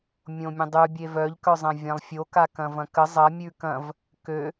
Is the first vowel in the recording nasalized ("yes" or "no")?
yes